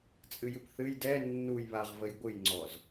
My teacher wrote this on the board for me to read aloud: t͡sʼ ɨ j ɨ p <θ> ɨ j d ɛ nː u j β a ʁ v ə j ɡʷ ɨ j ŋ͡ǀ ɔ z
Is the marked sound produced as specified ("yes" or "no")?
yes